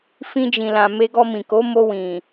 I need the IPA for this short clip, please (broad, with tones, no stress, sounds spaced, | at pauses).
f ĩ˧ d͡ʒ ĩ˨ l ã˨ m e˧ ɡ ɔ˧ m ĩ˨ k o˨˦ m o˧ w ĩ˨